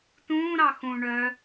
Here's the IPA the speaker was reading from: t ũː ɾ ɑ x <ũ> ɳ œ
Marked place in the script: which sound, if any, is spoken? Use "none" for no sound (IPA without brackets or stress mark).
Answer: ũ